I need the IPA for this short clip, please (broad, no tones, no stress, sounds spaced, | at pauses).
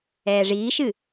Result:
ɛː ʐ iː ʃ ɨ